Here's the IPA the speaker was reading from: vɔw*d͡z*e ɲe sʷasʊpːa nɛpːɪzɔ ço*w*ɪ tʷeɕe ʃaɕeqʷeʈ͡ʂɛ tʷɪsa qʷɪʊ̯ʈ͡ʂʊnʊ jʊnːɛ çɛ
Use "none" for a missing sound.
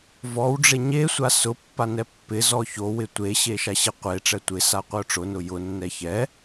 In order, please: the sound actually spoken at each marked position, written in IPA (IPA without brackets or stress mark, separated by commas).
ɖ͡ʐ, w